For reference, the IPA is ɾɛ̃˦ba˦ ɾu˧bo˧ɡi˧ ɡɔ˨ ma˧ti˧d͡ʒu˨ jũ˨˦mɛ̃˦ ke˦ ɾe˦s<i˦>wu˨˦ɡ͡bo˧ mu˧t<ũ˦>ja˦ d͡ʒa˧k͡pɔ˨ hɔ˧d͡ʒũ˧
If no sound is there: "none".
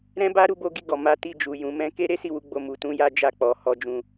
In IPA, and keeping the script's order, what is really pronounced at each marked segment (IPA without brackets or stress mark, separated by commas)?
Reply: i˦˨, ũ˦